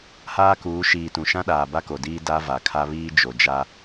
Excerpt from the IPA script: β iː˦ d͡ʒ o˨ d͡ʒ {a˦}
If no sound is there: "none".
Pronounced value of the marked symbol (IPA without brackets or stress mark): a˦